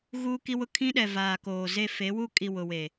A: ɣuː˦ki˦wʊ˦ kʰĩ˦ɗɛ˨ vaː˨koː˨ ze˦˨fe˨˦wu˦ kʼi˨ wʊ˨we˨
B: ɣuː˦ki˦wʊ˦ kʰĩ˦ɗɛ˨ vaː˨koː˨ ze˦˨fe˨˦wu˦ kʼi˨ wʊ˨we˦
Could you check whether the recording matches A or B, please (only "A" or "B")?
A